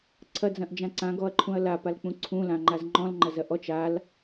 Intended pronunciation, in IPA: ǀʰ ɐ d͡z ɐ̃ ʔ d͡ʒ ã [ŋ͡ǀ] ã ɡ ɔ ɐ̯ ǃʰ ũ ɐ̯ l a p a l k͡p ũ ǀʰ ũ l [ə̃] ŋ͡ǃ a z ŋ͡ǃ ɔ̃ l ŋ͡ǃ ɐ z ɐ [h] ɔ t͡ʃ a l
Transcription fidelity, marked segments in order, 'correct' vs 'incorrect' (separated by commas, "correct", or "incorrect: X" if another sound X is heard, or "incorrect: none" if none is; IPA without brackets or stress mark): incorrect: ǀ, incorrect: ã, incorrect: ʔ